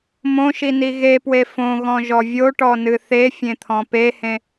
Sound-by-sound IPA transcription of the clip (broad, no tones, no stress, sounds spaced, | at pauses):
m õ ʃ i n i ɣ e p w e f õ ɣ ɔ̃ ʒ ɔ vʲ o ʈ ɔ n ɨ θ e fʲ ẽ t̪ʰ ɔ̃ p e h ẽ